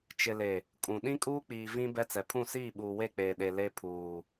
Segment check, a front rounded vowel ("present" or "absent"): absent